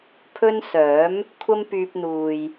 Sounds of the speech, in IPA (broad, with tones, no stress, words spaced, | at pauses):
pʰɵ˥n sœː˨˥m | kʷʰɐ˥mpyː˧p̚n̪uː˨j